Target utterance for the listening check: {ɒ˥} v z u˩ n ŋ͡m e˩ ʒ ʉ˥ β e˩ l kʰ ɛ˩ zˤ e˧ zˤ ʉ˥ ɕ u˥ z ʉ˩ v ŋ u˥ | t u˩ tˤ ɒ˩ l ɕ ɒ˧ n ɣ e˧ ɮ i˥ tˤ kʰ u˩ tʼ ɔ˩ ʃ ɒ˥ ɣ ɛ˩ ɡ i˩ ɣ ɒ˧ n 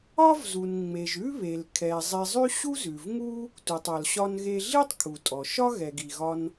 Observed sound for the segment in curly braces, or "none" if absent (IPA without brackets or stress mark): ɒ˥